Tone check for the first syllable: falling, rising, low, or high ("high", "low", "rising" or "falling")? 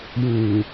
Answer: low